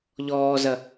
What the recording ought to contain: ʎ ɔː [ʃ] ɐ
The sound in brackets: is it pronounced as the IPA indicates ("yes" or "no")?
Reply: no